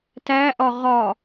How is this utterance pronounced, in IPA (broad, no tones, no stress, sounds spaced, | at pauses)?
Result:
t æ ʔ ɒ ʁ ɒ